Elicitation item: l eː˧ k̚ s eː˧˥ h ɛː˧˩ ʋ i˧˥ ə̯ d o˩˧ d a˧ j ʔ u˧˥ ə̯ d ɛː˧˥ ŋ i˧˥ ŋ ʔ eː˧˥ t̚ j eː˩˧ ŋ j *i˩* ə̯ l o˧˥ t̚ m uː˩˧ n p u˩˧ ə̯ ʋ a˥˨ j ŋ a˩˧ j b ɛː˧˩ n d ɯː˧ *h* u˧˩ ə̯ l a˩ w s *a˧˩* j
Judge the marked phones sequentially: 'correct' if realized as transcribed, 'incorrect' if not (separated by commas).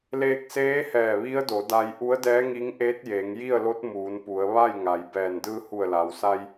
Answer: incorrect, correct, incorrect